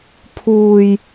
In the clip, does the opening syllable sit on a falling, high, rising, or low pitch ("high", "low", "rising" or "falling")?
low